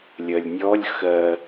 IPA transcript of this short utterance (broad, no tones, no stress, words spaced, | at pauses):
lʲɜlʲnʲɔlʲ xɜ